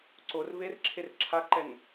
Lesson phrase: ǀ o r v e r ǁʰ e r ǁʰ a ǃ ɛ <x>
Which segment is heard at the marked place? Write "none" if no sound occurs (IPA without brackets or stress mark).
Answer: ŋ